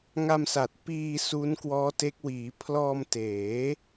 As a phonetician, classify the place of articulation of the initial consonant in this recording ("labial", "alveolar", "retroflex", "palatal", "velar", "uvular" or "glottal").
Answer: velar